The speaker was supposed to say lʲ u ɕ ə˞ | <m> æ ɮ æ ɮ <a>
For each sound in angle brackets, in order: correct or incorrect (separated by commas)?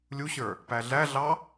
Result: incorrect, incorrect